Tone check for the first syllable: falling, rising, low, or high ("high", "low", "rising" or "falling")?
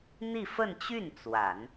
falling